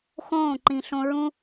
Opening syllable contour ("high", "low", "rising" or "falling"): falling